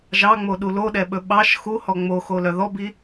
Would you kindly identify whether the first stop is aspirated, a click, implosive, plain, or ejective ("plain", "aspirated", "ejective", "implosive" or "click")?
implosive